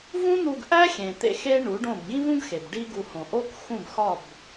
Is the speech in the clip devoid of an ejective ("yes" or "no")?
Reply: yes